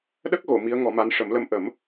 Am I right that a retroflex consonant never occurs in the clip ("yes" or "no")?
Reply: no